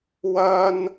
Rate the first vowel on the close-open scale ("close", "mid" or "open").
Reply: open